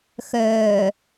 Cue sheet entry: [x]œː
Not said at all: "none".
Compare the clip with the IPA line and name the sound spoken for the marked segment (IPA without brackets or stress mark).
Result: x